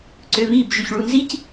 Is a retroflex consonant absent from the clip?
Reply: no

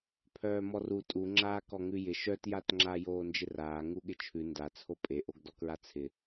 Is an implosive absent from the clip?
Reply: no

